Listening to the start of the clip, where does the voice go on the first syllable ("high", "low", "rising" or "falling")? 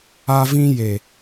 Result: high